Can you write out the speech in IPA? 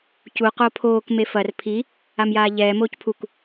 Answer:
c u q o pʰ oː k m e f ɐ r pʰ i | a m j aː ʎ ɛː m oː c pʰ u k

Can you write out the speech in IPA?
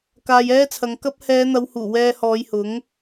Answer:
k aː˧ j ɛː˥ t͡sʰ ɐ˨˧ ŋ k ɐ˥ p̚ h ɛː˨˧ n̪ ɐ˨˧ w h uː˨˩ w ɛː˧ h ɔː˨˧ j h ʊ˨˥ ŋ

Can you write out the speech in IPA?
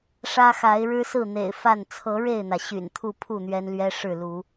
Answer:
ʂ ä˦ x a˨˦ ɪ̯ ɻ ɻ̩˦ s ɹ̩˥˨ n̪ ḛ˨˩ ɪ̯ f a˥˨ n t͡sʰ ɤ˨˦ ɻ e˥˨ ɪ̯ n̪ ä˩ ɕ y̰˨˩ n t̪ʰ u˥˨ pʰ u˥˨ n̪ ɥ ɛ˦ n l ɥ ɛ˦ ʂ ɻ̩˥˨ l u˨˦

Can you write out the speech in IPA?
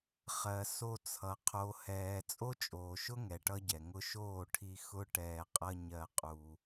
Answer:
χ ɜ˨ s o˧ t͡sʰ ʌ˨ qʰ o˨ h ɛː˨ t͡sʼ o˦ t͡ʃʼ oː˨ ʃ ʊ˦ ŋ ɛ˨ ʈ ʌ˦ ɟ ɛ˨ ŋ ʊ˧ ʃ oː˦˨ ʈʰ i˧ x ʊ˦ ʈ ɛː˧ qʼ ʌ˦ ɲ ɜ˦ qʼ u˧

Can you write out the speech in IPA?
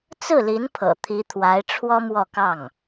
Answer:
t͡s ɹ̩˥˩ l i˧˥ n pʰ ɤ̰˨˩ t̪ʰ i˧˥ t̪ʰ w a˧˥ ɪ̯ ʈ͡ʂʰ w ɔ˥ m w ɔ˥˧ k ɑ˥˩ ŋ

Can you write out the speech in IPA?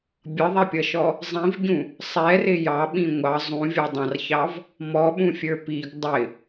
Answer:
bʲ ʌ ðˤ ɛ pʲ ʌ ʃ ɔ | zˤ ĩ v ɟ ũ | sˤ ɛ r ɪ j ɑ ɓ ĩ ŋʷ ɑ zˤ ũ vʲ ɔ dˤ ɑ̃ r ç ɑ v | m ɔ ɓ ũ fʲ ə˞ p i ɡ dˤ ɪ

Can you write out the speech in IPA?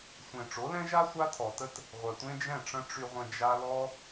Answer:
sʷ ẽ˨ ʈ͡ʂ o˨˦ l ɛ̃˦ ʒ a˦ sʷ a˦ tʰ ɔ˨ t ə˦ t | ʁʷ œ˨ tʷ ẽ˦ d͡ʒ ɛ̃˦˨ ʈ͡ʂ ə̃˦ ʈ͡ʂ y˧ ʁʷ ə̃˧ d͡ʒ a˦ l ɔ˦

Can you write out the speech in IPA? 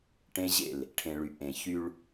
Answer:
ʈ ẽ˦ ʑ ḛ˦˨ l | ʈʰ ẽ˨ ɭ y˨ ʔ ẽ˨ ç y˦ ɭ

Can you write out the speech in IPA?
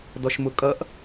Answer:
d ɔ ʃ m ʊ kʼ ʌ ʔ

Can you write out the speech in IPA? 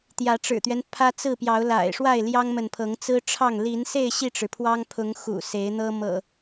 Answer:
t̪ j ä˨˦ ʈ͡ʂ ɻ̩˨˩ t̪ ɥ ɛ˦ n pʰ ä˦ t͡s ɹ̩˥˨ p j ɑ˨˦ ʊ̯ l a̰˨˩ ɪ̯ ʂ w a˥˨ ɪ̯ l j ɑ˦ ŋ m ə˨ n pʰ ɤ˨˦ ŋ t͡s ɹ̩˦ ʈ͡ʂʰ ɑ˥˨ ŋ l i˨˦ n s e˥˨ ɪ̯ ɕ i˥˨ ʈ͡ʂ ɻ̩˩ pʰ w ɑ˦ ŋ pʰ ʊ˨˦ ŋ x ṵ˨˩ s e˨˦ ɪ̯ n̪ ɤ˦ m ɤ̰˨˩

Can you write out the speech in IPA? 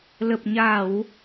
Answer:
l ə˨˩ p̚ ɲ a˧˩˨ w

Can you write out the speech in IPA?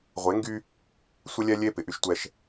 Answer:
ʁʷ e˨˦ ŋ ɡ y˦ | sʷ ə˦ lʲ ɛ˦ lʲ e˦ p ɪ˨ ʔ y˦ ʃ tʷ ɛ˦ ʃ

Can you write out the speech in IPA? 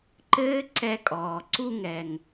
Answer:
ǃ ɘː˦ ǀ ɛ˧ kʼ ɔː˨ ǀ u˧ ŋ ɛ˨ ŋ

